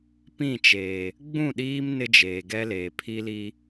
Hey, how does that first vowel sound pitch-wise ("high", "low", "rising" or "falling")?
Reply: falling